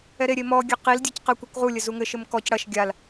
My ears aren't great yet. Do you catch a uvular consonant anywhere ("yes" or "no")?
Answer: yes